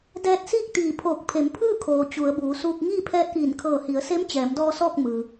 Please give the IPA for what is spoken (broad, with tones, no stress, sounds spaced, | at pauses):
d ɛː˧ t̚ s iː˥˨ k̚ t̪ iː˧˩ pʰ oː˧˩ k̚ pʰ e˩˧ m pʰ ɯː˥˨ kʰ oː˩ t͡ɕ u˩˧ ə̯ b uː˩˧ s uː˧ k̚ ŋ iː˥˨ pʰ ɛː˧ t̚ ʔ iː˧˩ n kʰ ɤː˧˩ h i˩˧ ə̯ s e˧˥ m t͡ɕ ɛː˩˧ m d ɔː˧ s ɔː˥˨ k̚ m ɯː˩